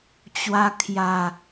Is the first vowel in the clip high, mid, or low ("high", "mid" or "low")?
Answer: low